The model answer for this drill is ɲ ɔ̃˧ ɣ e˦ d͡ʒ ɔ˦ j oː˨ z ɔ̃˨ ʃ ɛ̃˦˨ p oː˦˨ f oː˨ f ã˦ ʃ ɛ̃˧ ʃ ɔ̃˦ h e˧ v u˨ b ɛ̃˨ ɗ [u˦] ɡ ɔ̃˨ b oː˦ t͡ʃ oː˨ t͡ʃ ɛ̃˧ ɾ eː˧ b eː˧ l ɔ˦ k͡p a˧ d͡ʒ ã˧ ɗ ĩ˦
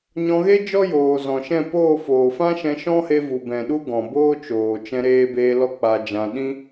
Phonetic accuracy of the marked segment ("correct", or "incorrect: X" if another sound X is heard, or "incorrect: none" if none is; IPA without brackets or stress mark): correct